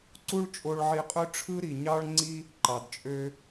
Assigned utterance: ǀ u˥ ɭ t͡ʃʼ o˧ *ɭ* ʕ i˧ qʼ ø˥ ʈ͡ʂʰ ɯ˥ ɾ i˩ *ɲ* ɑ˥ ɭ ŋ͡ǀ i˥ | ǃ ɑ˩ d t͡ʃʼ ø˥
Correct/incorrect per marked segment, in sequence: correct, correct

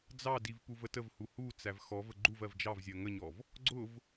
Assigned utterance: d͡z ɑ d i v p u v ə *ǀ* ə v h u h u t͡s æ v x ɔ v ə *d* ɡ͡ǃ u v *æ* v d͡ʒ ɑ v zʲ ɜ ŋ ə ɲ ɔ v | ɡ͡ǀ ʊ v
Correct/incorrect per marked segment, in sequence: incorrect, incorrect, incorrect

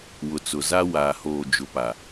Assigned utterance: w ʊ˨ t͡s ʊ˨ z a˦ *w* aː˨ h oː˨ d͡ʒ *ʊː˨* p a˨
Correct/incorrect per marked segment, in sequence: correct, incorrect

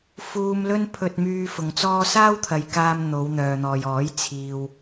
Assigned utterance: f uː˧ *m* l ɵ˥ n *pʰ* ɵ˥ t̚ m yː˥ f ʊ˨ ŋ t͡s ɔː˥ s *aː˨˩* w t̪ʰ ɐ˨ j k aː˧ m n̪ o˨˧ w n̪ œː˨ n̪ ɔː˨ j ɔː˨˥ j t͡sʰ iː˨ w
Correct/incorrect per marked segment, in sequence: correct, correct, incorrect

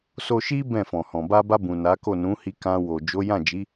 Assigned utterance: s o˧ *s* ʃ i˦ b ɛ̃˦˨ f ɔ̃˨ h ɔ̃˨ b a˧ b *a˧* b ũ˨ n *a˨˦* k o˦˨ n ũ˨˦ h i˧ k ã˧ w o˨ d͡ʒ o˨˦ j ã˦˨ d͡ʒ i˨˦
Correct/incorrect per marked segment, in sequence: incorrect, correct, correct

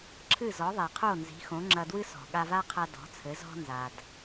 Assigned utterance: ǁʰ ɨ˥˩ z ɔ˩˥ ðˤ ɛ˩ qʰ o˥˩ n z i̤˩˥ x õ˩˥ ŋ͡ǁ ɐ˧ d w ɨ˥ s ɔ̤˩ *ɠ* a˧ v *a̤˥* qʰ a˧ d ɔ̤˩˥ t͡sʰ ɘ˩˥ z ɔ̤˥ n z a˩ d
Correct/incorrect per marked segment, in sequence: correct, incorrect

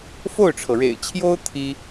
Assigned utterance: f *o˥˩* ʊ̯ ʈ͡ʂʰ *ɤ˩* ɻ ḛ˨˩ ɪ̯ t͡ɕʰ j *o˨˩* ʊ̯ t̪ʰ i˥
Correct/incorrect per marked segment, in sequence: correct, correct, incorrect

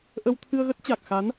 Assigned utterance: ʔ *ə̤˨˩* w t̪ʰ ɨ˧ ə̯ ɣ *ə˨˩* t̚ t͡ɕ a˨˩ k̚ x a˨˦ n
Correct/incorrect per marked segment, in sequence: incorrect, incorrect

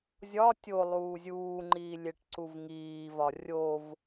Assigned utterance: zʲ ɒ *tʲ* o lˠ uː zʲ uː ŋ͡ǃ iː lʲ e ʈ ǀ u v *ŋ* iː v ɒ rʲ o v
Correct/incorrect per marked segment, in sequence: correct, correct

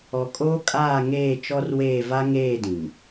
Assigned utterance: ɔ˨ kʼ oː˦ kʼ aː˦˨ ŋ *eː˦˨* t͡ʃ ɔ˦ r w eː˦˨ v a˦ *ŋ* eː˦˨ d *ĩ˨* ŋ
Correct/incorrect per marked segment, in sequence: correct, correct, correct

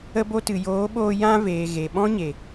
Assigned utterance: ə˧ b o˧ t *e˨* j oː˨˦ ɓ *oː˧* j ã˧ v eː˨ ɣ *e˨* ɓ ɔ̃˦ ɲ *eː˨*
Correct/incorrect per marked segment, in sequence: incorrect, correct, correct, incorrect

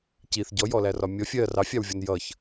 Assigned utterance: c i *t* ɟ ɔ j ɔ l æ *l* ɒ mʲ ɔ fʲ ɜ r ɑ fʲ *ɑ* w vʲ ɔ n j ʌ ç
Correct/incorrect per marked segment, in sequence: incorrect, incorrect, correct

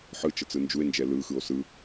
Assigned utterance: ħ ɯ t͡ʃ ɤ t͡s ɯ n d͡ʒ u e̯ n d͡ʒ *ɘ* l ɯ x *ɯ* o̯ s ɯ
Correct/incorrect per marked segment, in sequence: incorrect, correct

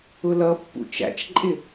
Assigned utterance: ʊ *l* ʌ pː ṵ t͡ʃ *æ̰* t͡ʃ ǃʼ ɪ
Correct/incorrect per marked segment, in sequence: correct, correct

